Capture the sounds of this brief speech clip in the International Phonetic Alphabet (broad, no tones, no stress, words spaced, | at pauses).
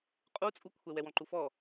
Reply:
qʼut͡sʼukʷʰɛ wɛwɔ̃ǃufɔ